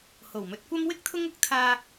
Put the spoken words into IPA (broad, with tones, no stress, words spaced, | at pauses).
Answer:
ho˨˩wmɵ˨t̚kʷɐ˥m wɪ˥k̚t̪ʰʊ˥ŋʊ˥k̚ t̪ʰaː˧